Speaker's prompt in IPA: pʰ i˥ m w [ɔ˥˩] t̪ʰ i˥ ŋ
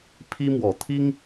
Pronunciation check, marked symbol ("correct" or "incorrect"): incorrect